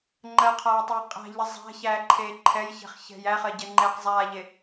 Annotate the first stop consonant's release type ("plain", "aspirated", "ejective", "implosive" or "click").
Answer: click